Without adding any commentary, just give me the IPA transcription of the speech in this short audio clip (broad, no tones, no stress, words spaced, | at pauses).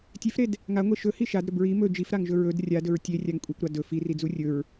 tʲefɾed | ŋaŋʷe ʃɵhi ʃadɾɵb ɹi mɵ d͡ʒifɾaŋʒɵ ɹɵd rʲadɵɹ tʲerʲaŋ kʷʼekʷɾa dɵ firid͡zu rʲɵɹ